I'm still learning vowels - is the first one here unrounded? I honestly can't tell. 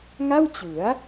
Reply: yes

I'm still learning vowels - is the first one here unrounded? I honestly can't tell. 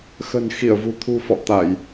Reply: yes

